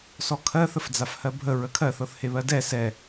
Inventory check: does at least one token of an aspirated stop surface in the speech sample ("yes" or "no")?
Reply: yes